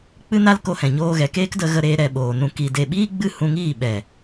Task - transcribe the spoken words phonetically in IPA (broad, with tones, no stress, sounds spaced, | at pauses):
k͡p ɨ˧ n a˧ l k o˧ h ɛ̃˨ ɲ oː˧ ɣ ɛ˨ k eː˦ k d ə˧ ɣ ə˧ ɾ eː˧ ɾ ɛ˧ ɓ oː˨ n ũ˧ k i˧ d e˨ ɓ iː˦ ɡ͡b ɨ˦˨ h ũ˧ ŋ iː˦˨ ɓ ɛ˨